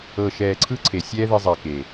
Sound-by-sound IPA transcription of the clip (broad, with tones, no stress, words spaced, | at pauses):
ɤ˨ʃɛː˨ǀʰɯ˧ ǀʰe˨sʲɛː˦ ði˧zˤɛː˨ke˨